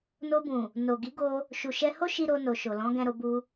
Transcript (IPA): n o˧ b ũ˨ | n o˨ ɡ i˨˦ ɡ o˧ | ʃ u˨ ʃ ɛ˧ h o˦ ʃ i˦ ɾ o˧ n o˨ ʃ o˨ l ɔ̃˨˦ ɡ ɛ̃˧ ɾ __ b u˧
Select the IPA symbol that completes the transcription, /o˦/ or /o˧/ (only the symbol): o˧